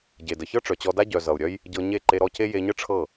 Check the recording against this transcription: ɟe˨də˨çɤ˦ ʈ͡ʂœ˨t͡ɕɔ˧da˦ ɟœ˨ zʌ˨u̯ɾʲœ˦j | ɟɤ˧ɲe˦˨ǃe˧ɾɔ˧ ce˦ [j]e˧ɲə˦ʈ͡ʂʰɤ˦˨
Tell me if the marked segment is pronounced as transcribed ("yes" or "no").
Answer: yes